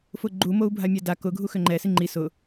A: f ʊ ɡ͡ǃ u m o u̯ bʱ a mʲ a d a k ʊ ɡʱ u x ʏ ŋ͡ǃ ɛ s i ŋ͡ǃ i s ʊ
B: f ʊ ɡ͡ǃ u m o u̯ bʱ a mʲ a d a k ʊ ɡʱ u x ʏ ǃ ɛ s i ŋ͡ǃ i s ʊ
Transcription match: A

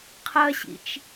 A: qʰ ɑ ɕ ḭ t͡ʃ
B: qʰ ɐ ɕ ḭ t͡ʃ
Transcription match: B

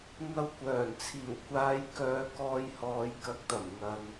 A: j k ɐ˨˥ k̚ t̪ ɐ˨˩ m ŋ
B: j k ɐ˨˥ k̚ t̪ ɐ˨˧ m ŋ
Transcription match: A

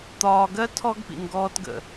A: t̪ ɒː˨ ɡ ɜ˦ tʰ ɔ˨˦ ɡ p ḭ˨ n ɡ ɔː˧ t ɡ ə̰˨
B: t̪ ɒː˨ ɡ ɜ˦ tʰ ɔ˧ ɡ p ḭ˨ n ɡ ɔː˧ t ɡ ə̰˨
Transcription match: B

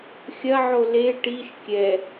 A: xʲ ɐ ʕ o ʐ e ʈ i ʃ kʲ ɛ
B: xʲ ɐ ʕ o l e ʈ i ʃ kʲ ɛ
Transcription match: B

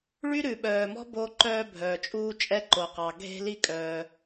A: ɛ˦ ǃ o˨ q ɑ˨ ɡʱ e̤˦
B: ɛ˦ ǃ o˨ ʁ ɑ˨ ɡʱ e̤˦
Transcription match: A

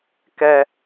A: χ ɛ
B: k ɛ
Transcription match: B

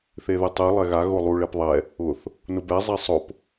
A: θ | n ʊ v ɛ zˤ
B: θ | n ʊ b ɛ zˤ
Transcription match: B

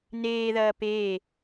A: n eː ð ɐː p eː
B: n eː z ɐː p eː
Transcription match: A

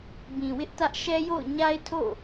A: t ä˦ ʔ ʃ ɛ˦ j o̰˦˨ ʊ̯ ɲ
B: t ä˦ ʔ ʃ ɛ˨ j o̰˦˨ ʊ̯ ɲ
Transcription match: A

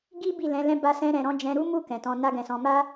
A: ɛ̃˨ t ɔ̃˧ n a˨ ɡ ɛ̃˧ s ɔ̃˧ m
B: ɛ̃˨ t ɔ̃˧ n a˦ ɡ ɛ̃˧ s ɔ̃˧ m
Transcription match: B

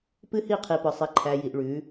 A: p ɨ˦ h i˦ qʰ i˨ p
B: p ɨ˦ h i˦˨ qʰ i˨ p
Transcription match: B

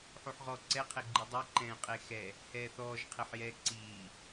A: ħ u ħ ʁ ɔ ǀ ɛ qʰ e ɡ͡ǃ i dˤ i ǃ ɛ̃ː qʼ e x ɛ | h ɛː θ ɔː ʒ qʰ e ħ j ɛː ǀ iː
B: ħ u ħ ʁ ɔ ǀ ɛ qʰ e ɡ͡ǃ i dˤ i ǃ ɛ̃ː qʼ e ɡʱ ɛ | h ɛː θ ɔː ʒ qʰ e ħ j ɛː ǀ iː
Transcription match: A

